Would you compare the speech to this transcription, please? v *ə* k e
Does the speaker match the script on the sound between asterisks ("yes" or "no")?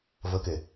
yes